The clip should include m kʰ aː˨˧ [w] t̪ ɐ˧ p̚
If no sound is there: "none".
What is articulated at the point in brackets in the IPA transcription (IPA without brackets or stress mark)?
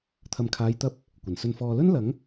j